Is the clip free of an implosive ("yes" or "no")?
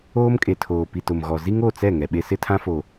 no